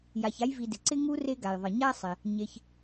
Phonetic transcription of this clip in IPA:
j a˨ ç a˦ j v i˨ d ɪ˩ ǀ ɪ˦ ŋ u˦ r e˦ ɡ a˩ j ðˤ ɪ˩ ɲ a˥ sˤ ɪ˩ | ɲ e˨ ç

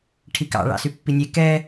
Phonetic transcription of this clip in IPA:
ʈʰ i k ɑ̰ ɭ ɑ̰ s y pː i nʲ e k ɛ

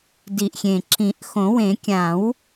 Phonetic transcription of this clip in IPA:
d i˨˩ ʔ xʲ ẽ˨˩ ǁ ĩ˨˩˦ ʔ x õ˨˩˦ w ẽ˨˩˦ kʲ ã˨˩˦ w

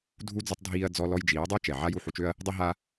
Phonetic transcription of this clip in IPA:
dʱ u˦ d͡z u˧ tˤ dʱ iː˧ ɐ̯ d͡z ɔ˧ l ɔ˧ j d͡ʒ iː˨˦ dˤ o˦ t͡ʃ ɛ˨ ʕ a˦ j u˦˨ ħ u˧ t͡ʃ ø˦ ɐ̯ | dˤ i˧ ɦ a˧

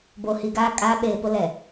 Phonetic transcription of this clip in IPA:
b oː˨ h i˨ ɡ aː˦˨ kʼ aː˦ ɓ eː˨ p ʊ˦ l ɛ˨

